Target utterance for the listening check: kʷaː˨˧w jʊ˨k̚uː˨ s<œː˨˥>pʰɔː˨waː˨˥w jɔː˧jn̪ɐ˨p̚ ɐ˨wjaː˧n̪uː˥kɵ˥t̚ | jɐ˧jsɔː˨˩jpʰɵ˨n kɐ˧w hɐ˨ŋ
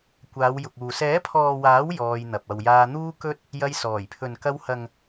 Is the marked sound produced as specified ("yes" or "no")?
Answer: no